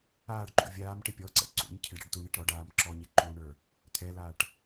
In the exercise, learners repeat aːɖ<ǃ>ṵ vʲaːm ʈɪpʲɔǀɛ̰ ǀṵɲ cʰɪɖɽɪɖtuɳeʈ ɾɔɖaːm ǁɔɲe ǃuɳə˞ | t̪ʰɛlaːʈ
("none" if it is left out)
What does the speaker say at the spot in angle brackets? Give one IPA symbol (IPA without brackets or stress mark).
ǃ